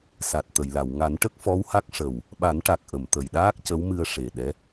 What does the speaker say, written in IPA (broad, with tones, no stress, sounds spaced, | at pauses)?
s a˨˩ t̚ t̪ ə˨˩˨ j l a˨˩˨ w ŋ a˨˩˦ n ʈ ə˦˥ k̚ f ɔ˧˥ w h a˦˥ k̚ ʂ ə˨˩ w | ɓ a˨˩˦ n ʈ a˨˩ k̚ ʔ ə˨˩˨ m t̪ ə˨˩ j ɗ aː˦˥ k̚ c ə˧˥ w m ɨ˧ ə̯ ʂ e˨˩ ɗ ɛ˧˥